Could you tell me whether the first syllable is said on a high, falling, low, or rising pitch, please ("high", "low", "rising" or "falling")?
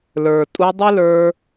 low